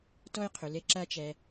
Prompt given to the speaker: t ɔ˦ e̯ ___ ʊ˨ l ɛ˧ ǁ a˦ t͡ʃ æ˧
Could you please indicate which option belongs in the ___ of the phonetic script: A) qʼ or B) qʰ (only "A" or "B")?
B